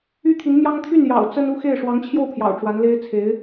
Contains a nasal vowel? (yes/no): no